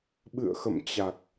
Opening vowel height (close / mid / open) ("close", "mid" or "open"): close